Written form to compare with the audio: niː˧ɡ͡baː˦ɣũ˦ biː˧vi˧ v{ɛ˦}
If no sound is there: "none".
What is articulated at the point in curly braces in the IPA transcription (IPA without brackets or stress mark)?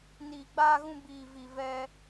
ɛ˦